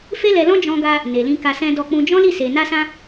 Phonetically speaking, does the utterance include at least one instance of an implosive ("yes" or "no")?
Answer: no